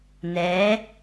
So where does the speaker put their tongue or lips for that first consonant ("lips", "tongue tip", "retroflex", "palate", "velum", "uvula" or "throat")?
tongue tip